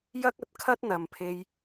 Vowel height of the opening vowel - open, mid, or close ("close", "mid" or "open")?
open